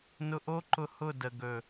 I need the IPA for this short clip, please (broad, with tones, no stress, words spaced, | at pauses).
nʊ˧ʔo˦ ǃʊ˧ hʊ˦˨də˨ ɡɵ˨